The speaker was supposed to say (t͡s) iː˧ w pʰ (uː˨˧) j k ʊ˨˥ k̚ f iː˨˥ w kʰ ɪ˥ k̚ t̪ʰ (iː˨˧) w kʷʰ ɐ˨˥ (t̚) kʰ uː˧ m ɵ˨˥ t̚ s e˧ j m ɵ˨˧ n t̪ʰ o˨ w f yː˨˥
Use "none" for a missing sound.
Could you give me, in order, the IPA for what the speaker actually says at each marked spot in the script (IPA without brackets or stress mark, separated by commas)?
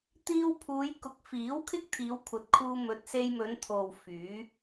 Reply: t̪, uː˨˧, iː˨˧, t̚